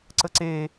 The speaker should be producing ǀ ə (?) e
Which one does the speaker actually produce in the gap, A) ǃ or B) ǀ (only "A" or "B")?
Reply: B